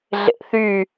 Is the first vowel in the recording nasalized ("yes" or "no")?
no